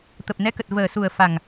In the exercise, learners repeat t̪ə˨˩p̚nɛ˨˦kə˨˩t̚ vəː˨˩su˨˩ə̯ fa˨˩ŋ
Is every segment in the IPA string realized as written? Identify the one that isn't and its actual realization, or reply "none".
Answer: none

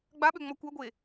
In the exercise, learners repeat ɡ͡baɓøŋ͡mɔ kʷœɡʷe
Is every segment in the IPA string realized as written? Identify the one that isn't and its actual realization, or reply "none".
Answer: none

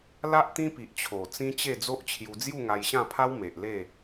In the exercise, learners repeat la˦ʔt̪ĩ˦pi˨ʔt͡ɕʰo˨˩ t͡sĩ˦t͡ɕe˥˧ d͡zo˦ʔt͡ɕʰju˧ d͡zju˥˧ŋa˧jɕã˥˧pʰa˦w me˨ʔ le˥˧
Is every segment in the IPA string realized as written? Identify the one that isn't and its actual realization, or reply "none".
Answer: none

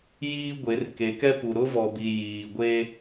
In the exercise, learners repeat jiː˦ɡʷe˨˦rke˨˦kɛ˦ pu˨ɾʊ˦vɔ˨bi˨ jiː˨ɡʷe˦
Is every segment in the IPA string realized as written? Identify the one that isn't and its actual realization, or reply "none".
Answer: none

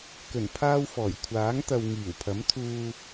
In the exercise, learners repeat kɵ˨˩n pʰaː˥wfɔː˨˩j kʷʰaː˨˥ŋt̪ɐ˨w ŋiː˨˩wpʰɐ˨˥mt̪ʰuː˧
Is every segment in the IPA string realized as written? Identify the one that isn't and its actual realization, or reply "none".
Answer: none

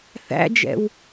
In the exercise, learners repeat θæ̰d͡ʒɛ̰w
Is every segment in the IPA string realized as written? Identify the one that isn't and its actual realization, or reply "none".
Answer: none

